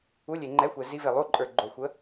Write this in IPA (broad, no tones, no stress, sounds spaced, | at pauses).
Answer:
u lʲ e ŋ͡ǃ ɛ xʷ ɛ z i v e lˠ u ǃʼ ə˞ ɡ͡ǃ o xʷ ə